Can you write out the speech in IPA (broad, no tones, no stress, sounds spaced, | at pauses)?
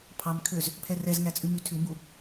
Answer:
pʰ ɑ m kʰ ø z | pʰ ɛ r ɛ z ŋ æ t͡sʼ ʉ m y tʰ ʉ m b u